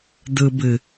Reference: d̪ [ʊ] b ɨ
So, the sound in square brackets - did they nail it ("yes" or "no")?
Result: no